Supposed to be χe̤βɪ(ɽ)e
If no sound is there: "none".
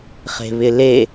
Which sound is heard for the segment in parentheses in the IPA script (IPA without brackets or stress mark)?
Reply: l